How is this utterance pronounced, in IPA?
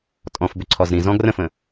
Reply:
tʼ ɔ̃ f b ʏ ǀʰ ɔ z ɾ ĩ z ɔ̃ ɡ r ə̃ f ə̃

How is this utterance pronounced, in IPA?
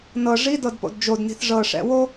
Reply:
n ɤ ʐ i d ɤ d p o̰ d d͡ʒ o d n i̤ θ ʐ ɤ ʂ ɛ̰ w o

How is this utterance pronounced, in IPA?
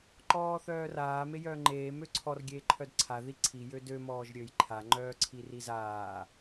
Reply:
ǃ ɔː θ œː r aː m e j œː ŋ͡ǃ eː m ø ǀʰ ɔ r ɡʲ eː ǃʰ œ d ǀʰ a ð i ǀʰ i j ø d ø m ɔː ʒ ɾʲ ø j ǃʰ a ŋ͡ǃ œː ǀʰ i r i z aː

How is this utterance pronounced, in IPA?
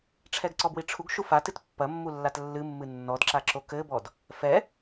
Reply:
ʈ͡ʂʰ ɛ ɡ ǀ ɔ b w i ʈ͡ʂʰ u ɡ ʃ u f a t ɨ t pː ɐ mː u lː a t lː ɨ mː ɨ nː ɔ d ǁ a ǁ o k ɘ b ɔ d | f ɛ

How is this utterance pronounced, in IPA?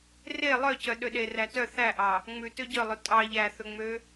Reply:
r e lˠ œ c œ ɗ ø ɗ e r æ t œ θ æ ʔ ɑ | ŋ͡m ʉ t ø ɟ œ lˠ ɵ tʼ ɑ ʎ æ θ ɵ ŋ͡m ø

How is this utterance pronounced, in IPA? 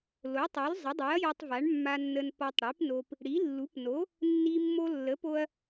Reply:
l o˩˥ tˤ o˩˥ l zˤ ə˩˥ dˤ ɨ˩˥ ɐ̯ j ɒ˧ tˤ v a˩˥ ɳ mː a˧ nː ə˧ n p ɒ˧ tˤ ɽ i˩˥ p n o˧ p | ɽ i˩˥ lː u˩˥ p n o˩˥ | nː i˧ mː o˧ lː ə˩˥ p o˧ ɐ̯

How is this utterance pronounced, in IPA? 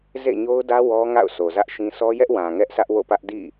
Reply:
z ḛ˦˨ ɲ o˦ ʊ̯ d ä˦ w ɔ˦ ŋ a̰˦˨ ʊ̯ s o˨ z ä˦ ʔ ʃ ĩ˦ s ɔ˦ j ɛ˦ ʔ w ã˨ ŋ ɛ˦ ʔ s ä˦ ʔ w o̰˦˨ p ä˦ ʔ d ḭ˦˨

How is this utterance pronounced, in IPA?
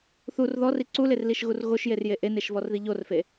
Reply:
θ u r ð ɔ r i ǀ u l e r l i ʃ ɣ u r ɣ o ʃ j e r j e ʔ e n e ʃ v ɔ r ð i ʎ o r f e

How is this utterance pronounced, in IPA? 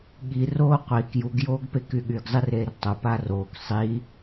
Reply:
ɠ i r oː qʷ i k j u ɡ j oː ɡ p e k y ɠ y ɡ zˤ i r eː r tˤ o p aː r oː k sˤ iː

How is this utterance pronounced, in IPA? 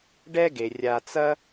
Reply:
ɖ ɛ˦ ɡ e˩ rʲ a˨ t͡s ɐ˦

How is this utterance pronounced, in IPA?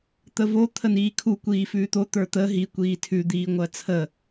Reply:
t̪ ə v o t̪ʰ ə n iː kʰ u kʷ iː f ʉː t̪ o t̪ ə˞ t̪ ə ɦ i kʷ iː tʰ ʉ d̪ iː ŋʷ ɜ t͡sʰ ə

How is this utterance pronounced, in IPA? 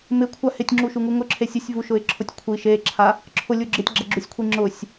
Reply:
m ɪ kʷʰ a h ɪ tʲ ŋ͡ǁ u ʃ u ŋ u ŋ ʊ ǁʰ e sʲ ʊ sʲ v u ʃ ʊ ɪ̯ ǁʰ ʊ tʲ kʷʰ i ʃ e ǁʰ a | ǁʰ ʊ lʲ u ɡ͡ǁ ɪ tʲ ɡ͡ǁ ɛ ɡ͡ǁ u sʲ kʷʰ i ŋ͡ǁ ʊ sʲ

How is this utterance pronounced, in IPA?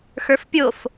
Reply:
x ə˞ f pʲ o f

